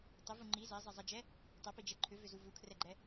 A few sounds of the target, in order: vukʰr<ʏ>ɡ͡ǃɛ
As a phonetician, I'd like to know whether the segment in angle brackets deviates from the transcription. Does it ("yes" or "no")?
yes